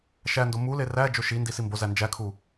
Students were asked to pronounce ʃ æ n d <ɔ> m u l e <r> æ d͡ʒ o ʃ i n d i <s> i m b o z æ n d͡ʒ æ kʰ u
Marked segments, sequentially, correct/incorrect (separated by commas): incorrect, correct, correct